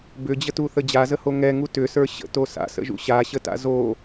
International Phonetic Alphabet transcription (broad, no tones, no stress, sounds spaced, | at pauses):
b ʏ d͡ʑ ə t u θ ə d͡ʑ a z ə h o ŋ ɛ ŋ u t ʏ s ə˞ ɕ ə̰ t o s a̰ s ə̰ ʒ ṵ ɕ a ɕ ə t a̰ z o